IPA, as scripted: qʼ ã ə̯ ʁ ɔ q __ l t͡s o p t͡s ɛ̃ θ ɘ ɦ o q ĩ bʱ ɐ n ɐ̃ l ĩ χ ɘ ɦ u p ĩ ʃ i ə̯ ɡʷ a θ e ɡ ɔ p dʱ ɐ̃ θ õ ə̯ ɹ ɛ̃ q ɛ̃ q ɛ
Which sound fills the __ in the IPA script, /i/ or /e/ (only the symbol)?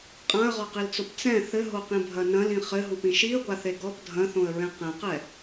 i